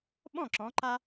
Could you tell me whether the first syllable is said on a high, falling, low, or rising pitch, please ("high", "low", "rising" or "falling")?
falling